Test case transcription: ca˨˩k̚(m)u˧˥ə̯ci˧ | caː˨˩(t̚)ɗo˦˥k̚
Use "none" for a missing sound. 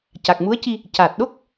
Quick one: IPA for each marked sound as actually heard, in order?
m, t̚

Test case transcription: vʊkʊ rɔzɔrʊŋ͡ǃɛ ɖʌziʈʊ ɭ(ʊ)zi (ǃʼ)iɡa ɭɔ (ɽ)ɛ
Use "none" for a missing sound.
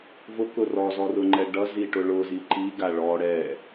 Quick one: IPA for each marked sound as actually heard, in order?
ʊ, ǃ, ɽ

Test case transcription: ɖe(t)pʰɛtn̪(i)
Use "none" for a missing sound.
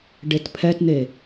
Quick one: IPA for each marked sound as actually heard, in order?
t, e

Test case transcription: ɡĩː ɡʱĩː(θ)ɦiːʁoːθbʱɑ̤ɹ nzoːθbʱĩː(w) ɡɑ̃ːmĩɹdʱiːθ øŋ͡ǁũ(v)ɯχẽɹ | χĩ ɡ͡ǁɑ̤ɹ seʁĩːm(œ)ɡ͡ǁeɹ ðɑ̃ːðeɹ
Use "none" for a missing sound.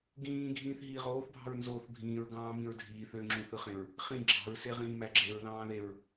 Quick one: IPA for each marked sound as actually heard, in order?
θ, ɹ, θ, æ

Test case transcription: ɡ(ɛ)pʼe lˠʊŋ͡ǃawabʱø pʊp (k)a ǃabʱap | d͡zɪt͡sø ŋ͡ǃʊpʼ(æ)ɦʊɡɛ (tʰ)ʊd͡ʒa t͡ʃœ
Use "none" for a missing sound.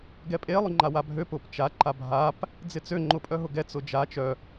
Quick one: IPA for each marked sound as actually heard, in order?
ɛ, t͡ʃ, œ, t͡s

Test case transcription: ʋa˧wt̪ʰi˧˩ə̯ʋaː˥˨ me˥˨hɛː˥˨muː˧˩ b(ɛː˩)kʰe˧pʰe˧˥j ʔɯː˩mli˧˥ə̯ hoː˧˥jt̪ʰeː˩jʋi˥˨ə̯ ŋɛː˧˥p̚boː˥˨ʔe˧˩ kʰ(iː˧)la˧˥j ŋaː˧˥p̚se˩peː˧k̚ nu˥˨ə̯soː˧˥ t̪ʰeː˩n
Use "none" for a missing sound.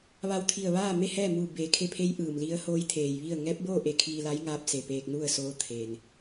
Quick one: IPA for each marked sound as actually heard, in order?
eː˩, iː˧

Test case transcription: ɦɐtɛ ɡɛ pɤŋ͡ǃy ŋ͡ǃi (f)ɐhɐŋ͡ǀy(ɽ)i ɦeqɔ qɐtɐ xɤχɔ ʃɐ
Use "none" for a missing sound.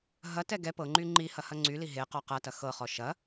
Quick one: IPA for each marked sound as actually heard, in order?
h, l

